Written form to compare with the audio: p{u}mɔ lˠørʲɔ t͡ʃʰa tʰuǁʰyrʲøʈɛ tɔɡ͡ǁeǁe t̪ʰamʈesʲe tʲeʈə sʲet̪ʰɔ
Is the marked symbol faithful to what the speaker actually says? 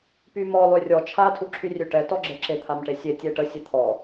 no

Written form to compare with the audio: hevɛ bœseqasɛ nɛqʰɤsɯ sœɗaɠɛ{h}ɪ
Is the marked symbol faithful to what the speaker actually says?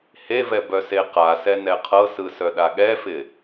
no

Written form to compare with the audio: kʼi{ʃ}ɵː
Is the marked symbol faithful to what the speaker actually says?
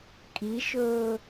yes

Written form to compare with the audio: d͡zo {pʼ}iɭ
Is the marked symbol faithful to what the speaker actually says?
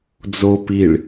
no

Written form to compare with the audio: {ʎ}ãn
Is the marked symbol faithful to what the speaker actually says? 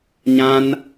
no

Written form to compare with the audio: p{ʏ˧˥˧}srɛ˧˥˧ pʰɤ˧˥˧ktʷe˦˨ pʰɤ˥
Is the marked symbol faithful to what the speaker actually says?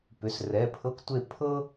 yes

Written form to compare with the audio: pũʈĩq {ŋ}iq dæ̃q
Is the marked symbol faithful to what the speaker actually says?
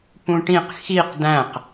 no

